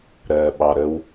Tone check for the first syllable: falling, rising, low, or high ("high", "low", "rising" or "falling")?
low